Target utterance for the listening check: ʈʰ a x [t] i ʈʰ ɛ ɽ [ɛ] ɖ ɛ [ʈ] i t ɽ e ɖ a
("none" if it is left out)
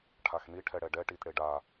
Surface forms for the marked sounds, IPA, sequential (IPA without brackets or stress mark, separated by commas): n, ɛ, ʈ